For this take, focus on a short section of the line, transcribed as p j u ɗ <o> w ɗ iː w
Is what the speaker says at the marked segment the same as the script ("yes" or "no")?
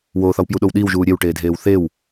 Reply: yes